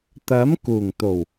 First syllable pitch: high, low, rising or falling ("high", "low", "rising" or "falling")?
rising